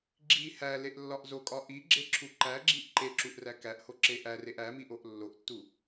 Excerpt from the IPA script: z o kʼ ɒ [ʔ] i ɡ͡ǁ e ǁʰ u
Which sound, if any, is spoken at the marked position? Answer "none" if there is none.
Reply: ʔ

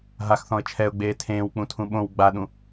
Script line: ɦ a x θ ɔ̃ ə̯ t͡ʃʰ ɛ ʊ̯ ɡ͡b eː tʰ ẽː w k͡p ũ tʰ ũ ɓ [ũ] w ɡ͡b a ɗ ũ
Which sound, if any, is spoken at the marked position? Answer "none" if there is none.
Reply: õ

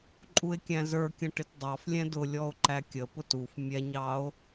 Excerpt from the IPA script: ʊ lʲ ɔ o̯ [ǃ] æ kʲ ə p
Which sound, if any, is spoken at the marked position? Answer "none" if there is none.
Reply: ǃ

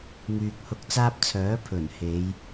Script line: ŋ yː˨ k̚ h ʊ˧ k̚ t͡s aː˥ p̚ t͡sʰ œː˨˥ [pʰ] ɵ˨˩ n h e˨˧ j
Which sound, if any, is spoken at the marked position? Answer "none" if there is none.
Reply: pʰ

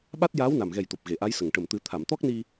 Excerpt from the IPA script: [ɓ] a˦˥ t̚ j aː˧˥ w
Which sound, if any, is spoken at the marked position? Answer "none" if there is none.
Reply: ɓ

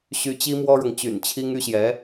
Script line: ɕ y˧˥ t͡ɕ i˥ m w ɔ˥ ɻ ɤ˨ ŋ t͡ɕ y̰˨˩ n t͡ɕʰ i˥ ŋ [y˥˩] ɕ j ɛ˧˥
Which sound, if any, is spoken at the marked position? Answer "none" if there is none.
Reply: y˥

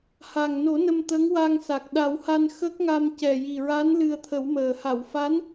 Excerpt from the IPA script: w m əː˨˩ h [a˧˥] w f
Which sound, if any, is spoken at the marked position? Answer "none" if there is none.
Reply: a˨˩˨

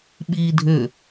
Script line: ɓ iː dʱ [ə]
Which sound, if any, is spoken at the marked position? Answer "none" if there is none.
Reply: ʏ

